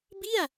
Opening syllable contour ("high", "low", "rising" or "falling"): falling